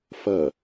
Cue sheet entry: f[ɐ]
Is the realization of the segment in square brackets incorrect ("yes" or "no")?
no